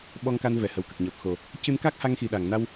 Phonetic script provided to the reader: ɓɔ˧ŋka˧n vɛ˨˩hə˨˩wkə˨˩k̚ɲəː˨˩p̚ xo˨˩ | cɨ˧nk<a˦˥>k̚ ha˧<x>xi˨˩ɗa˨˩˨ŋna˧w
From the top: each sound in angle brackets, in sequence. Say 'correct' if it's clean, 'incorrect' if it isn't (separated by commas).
correct, incorrect